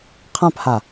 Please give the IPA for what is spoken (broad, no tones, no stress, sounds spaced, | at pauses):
qʰ ã p h a